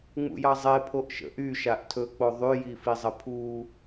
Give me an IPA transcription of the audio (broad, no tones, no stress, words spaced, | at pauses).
ŋ͡mṵjɑzˤe pʰoʔʃə̰ʔy ʃaʔtʰɵ k͡poðˤy jifizˤəpʰu